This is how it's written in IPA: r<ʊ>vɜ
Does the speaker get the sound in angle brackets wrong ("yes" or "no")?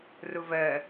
no